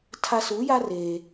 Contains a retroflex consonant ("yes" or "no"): no